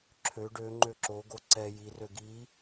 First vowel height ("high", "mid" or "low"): mid